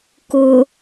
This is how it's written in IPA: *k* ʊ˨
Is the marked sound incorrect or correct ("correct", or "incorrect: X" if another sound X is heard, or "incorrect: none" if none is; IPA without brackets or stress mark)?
correct